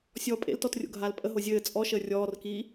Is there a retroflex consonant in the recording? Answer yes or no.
no